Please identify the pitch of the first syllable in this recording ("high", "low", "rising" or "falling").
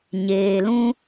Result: low